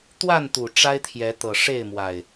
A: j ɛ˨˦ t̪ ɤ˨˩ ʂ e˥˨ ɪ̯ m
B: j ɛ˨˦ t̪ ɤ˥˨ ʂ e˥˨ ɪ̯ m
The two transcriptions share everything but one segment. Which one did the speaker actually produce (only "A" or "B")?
A